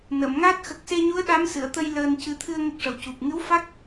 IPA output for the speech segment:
n ə˨˩˨ m ŋ a˦˥ t̚ x ə˨˩ k̚ s e˧ ɲ u˧˥ ə̯ ɗ a˧˥ m s ɨ˨˩˨ ə̯ t̪ ə˧ j l əː˧ n c ɨ˧ t̪ʰ ɨ˧ ə̯ ŋ ə˦˥ k̚ ʂ ə˨˩ w c u˨˩ p̚ ŋ ɨ˧˥ w f a˦˥ k̚

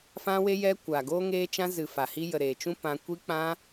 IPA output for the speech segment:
f ã˧ w e˧ j ɛ˧ kʷ a˨ ɡ oː˧ ŋ eː˧ t͡ʃ ã˧ z ɨ˨ f a˨ h i˧ j ə˨ ɾ eː˨ t͡ʃ ũ˧ p ã˧ kʷ i˦ k͡p ã˦

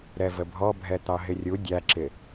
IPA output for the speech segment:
ɾ ɛ v ə bʱ ɔ bʱ ɛ t̪ ɑ ɦ ɪ rʲ u dʲ æ ǁ ɪ

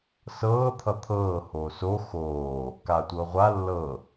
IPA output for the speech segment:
s ɤː t̪ʰ ʌ t̪ʰ ɤː h oː s o x oː | k aː tʷ ɤː ʁʷ a lː ɤ

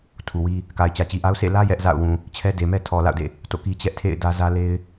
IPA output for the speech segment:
tʰ u˨ w i˦ | k a˨ ɪ̯ t͡ɕ ä˨ t͡ɕ i˨ ʔ a˦ ʊ̯ s ḛ˦˨ l ä˦ j ɛ˦ ʔ z a̰˦˨ ʊ̯ w ũ˨ | t͡ɕʰ ɛ˦ d e˨ m ɛ˦ tʰ ɔ˨ l a̰˦˨ ʊ̯ d ḛ˦˨ | t o̰˦˨ k i˦ t͡ɕ ɛ˦ ʔ tʰ ḛ˦˨ ɪ̯ d ä˦ z ä˦ l e˦ ɪ̯

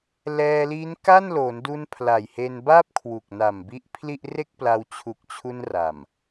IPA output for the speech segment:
l ɛː˧ l i˦˥ n k a˥˩ n l o˩˦ n d u˧ n pʰ l a˨˩ j h e˧ n b a˥˩ p̚ kʰ w u˨˩ k̚ n a˨˩ m b i˦˥ ʔ pʰ l i˥˩ ʔ r e˥˩ k̚ p l a˧ w t͡ɕʰ u˨˩ k̚ t͡ɕʰ u˧ n r a˨˩ m

